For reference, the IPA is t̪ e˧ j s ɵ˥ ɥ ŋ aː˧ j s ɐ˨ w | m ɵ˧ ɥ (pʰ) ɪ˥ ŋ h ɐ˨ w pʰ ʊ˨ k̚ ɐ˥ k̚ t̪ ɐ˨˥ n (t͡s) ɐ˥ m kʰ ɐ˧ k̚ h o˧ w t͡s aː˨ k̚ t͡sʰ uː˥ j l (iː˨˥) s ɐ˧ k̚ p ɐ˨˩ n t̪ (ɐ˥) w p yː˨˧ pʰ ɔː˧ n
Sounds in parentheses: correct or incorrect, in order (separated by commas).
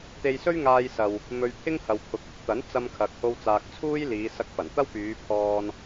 correct, correct, incorrect, correct